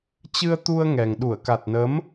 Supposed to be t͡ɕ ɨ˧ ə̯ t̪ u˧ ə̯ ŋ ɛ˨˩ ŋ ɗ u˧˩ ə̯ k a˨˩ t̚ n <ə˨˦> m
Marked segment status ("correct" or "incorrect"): correct